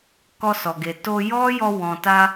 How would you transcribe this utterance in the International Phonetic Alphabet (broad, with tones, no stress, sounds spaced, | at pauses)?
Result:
k ɔ˧ s ɔ˨ ɡ e˨ t o˧ j ɔ˦ j ɔ˧ w ɔ̃˨ t a˧